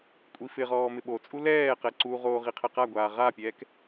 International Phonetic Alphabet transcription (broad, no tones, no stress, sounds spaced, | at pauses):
kʷʼ i f ɪ ʁ ɔː m ɪ ɓ o t͡sʼ u l ɛː q ɛ ǀ u ʁ oː ʁ i qʰ ɛ q a ɡʷ aː ʁ a pʲ ɛː k